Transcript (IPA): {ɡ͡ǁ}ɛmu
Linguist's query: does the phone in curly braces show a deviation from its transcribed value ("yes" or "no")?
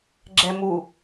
no